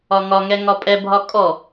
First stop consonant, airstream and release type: ejective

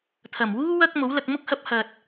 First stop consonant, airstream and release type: aspirated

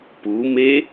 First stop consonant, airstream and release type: plain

